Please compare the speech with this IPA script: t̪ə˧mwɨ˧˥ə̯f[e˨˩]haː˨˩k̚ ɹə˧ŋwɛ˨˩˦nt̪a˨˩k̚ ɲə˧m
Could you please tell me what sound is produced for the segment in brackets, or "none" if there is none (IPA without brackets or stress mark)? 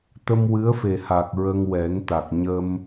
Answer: e˨˩